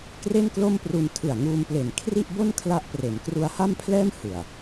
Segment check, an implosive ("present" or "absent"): absent